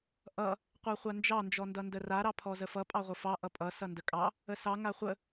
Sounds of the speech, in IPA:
ʔʌ | qʷɑχʷand͡ʒɑ nd͡ʒɔndʌndəra ɾɑpʰɔzəfʌ pʼɑʁʷəfɑ ʔʌpʼʌ sʌndəkʼɑ | əsɑ ŋaχʷə

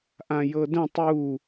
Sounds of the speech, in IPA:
ʔãjɤdə̃ tˤu

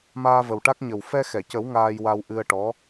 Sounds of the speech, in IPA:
maː˧və˨˩wʈa˦˥k̚ ɲə˨˩w fɛ˧xɛ˨˩˨cə˨˩˦w ŋaː˧jwa˧w ʔɨ˧ə̯ ʈɔ˧˥

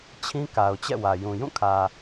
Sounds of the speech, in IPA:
t͡ɕʰĩ˦ka˨ʊ̯ t͡ɕɛ̰˦˨wä˨jũ˨ jũ˦˨kʰä˨

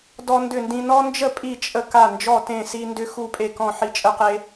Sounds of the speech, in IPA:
dɔ˦ndʏ˥˩ndĩ˦ nɔ˦nd͡ʒə˥˩ pʼi˥˩t͡ʃʼə˥˩ ka˥˩ nd͡ʒɔ˥˩tẽ˥˩si˦ ndʏ˦ xu˥˩pʼe˥˩kɔ̃˥˩ ħi˦t͡ʃʼə˦qe˦

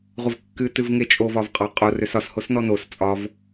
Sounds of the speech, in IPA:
ʁʷəvkːɨ tɨvŋet͡ʃʼo vɒvqʼɒ qʼo røsɒshos nɔnos t͡sʼɒv

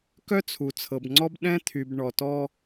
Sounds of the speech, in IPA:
kœ˦t͡sʰu˨t͡sʰɤ˨bŋ͡ǀɔ˦b ɗɛ̃˦t̪ʰy˨b ɳɔ˨tɔ˦

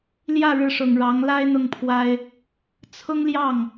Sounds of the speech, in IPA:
ljä˥˩ɻɻ̩˧˥ʂʊ˨˩ŋ ɻɑ˧˥ŋla˥ɪ̯n̪ʊ˥˩ŋpʰwa˥ɪ̯ | t͡sʰʊ˥ŋljɑ˥˩ŋ

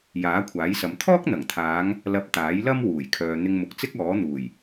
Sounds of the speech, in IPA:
jaː˨˥kʷʰaː˨˥jsɐ˨˧m t̪ʰɔː˥k̚n̪ɐ˨˩ŋt̪ʰaː˨˧ŋ | lɐ˧p̚ t̪aː˨˥jlɐ˥m wuː˨˩jkʰœː˨ n̪ɪ˧ŋmʊ˨k̚t͡sɪ˥k̚ ɔː˨˥n̪uː˨˩j

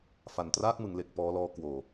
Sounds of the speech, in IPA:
fa˨˩ntraː˥˩k̚mɯ˩˦ŋle˨˩k̚ pɔː˦˥lɔː˦˥ kwoː˨˩

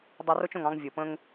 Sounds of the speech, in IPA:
dˤɐ˦ro˥t͡ʃõ˨ŋ ɑ̃˦ŋvʲɤ˩pə̃˦ŋ

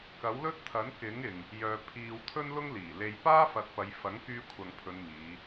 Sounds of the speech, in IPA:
kɐ˨˥wlɵ˥t̚t̪ʰɐ˨˥n kɪ˨˥ŋ ɪ˨ŋ | jœː˨ pʰiː˨w t̪ʰɵ˥nlʊ˥ŋ liː˨˩le˧j paː˥fɐ˨t̚pɐ˨˧j fɐ˨˥ŋkyː˧kʷʰɐ˨ŋpʰɵ˨˧n miː˨˧

